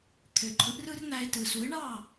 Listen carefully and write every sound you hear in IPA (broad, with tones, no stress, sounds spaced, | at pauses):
t̪ʰ ø˩ ǃʰ ɯ˩˥ ʔ r ɯ˥ r n̪ æ˧ ɪ̯ t ɯ˩ s u˩˥ ɪ̯ ɳ ɑ˥˩